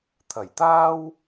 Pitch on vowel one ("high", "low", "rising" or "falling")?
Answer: low